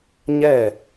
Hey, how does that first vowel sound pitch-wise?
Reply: falling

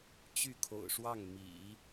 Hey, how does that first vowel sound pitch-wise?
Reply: falling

